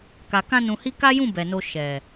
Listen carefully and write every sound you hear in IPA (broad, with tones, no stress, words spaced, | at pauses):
ka˨kã˧nũ˨hi˧ ka˦jũ˦˨ bɛ˨no˧ ʃɛ˨